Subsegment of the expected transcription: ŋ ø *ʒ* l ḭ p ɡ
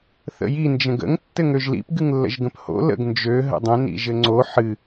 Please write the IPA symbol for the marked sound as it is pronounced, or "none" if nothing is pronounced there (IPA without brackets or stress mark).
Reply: ʒ